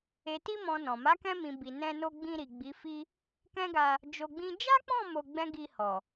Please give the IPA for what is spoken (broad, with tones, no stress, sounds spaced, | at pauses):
e˨ t i˧ m ɔ̃˨ n ɔ̃˨ m a˨˦ k ɛ̃˧ m ĩ˨ b i˨ n ɛ̃˧ n o˧ ɡ͡b ĩ˧ ɾ i˨ ɡ͡b i˨˦ f i˦ | k ɛ̃˦ ɡ a˧ | d͡ʒ o˧ ɡ͡b ĩ˦ d͡ʒ a˦ k͡p ɔ̃˦˨ m o˧ ɡ͡b ɛ̃˦ ɡ i˧ h ɔ˨